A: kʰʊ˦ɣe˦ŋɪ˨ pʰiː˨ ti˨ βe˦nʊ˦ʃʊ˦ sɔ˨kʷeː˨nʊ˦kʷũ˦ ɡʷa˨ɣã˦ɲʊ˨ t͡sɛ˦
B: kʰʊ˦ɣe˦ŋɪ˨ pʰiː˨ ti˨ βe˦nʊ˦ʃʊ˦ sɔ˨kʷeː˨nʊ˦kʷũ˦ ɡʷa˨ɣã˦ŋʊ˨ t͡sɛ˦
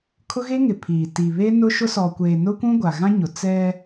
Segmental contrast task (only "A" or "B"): A